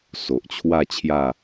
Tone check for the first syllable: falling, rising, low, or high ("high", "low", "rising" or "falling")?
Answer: low